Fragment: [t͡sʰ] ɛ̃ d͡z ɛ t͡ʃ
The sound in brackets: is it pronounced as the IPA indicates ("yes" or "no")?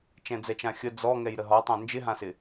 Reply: no